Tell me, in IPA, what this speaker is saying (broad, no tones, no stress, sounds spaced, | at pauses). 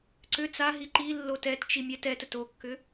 ǀ ʏ t͡s a ɦ i ǃ i lː o t ɛ t t͡ʃ i mʲ ɛ t ɛ t ə t o kː ʏ